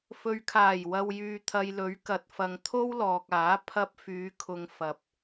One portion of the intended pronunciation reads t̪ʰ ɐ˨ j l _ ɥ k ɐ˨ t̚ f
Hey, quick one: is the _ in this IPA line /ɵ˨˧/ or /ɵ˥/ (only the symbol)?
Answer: ɵ˨˧